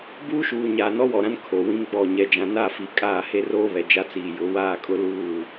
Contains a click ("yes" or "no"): no